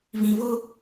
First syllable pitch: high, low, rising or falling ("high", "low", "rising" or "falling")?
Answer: low